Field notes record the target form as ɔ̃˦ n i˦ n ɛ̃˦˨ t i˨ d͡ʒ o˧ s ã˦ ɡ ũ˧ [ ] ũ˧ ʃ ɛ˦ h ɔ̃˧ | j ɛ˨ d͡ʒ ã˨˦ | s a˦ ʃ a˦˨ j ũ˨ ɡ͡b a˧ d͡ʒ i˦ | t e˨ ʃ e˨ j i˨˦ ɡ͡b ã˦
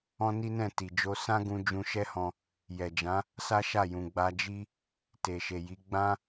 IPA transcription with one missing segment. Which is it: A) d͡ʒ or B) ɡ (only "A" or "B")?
A